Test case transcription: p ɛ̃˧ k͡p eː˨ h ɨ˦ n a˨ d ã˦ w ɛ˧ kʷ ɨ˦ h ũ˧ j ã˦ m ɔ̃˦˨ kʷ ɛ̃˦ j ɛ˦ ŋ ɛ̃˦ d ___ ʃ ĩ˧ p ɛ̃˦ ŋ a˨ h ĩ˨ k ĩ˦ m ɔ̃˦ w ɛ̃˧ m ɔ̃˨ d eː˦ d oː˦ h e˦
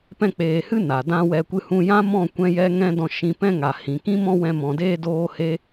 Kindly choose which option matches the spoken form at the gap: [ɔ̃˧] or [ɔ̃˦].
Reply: ɔ̃˧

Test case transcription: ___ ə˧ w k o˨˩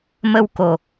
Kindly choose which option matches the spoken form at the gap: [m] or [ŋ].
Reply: m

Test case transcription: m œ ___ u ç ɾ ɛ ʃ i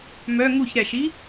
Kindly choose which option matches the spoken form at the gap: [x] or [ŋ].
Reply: ŋ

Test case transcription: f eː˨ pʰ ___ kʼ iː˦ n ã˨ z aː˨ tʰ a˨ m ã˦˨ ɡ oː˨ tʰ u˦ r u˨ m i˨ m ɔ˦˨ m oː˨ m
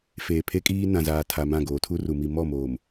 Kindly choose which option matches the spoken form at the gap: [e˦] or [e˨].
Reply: e˦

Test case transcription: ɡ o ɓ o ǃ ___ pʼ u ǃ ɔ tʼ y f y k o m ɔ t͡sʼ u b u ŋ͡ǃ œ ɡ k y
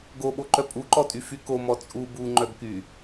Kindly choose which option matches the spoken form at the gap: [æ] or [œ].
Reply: œ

